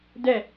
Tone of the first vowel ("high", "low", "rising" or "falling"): falling